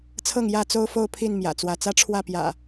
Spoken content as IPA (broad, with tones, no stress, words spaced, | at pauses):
t͡sʰɤ˥˨ŋjä˥˨ t͡so˦ʊ̯fo˥˨ʊ̯pʰi˥˨n mjä̰˨˩t͡swä˨˦ t͡sä˦ʈ͡ʂʰwä˥˨pjä̰˨˩